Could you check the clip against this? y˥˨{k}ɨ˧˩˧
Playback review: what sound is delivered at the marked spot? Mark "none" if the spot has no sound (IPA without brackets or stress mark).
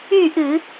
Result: ʔ